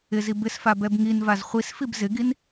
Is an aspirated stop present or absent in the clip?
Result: absent